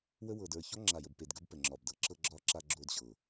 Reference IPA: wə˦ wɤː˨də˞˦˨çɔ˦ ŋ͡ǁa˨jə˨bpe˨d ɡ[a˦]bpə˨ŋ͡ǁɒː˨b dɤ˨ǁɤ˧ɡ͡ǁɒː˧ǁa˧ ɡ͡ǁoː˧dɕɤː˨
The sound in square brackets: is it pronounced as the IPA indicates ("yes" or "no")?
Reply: no